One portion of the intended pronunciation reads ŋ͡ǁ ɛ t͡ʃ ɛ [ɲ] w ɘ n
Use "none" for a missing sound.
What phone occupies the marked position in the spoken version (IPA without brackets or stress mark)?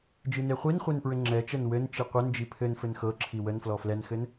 n